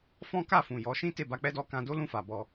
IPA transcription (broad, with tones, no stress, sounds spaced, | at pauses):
f ɔ̃˦ k a˦˨ f ũ˨ j ɔ˨˦ ʃ ĩ˦ t e˦˨ b a˧ k͡p ɛ˦ d ɔ˦ k ã˧ d o˦ l ũ˦˨ f a˨ b ɔ˧